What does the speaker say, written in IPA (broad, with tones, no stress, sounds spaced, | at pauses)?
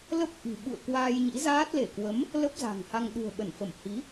l ə˦˥ p̚ ʔ i̤˨˩ ɓ ṵ˧˨ ə̯ k w aː˧ j ɲ ḭ˧˥ z aː˦˥ t̚ l e˧˩ k w ə˨˦ m | l ə˦˥ p̚ z a̤˨˩ ŋ h a˧ ŋ ɗ ṳ˨˩ ə̯ ɓ ə˧˩ n f ə˧˩ m h i˨˦